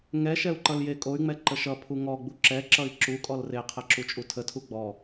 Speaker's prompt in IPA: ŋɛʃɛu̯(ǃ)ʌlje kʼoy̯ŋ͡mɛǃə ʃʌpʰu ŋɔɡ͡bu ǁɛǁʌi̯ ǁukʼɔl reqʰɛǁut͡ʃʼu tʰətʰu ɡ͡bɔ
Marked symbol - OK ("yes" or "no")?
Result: yes